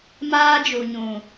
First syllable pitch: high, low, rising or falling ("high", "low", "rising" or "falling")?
high